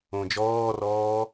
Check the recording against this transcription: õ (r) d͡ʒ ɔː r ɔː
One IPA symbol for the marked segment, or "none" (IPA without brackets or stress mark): none